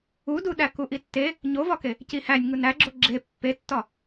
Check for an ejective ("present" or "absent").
absent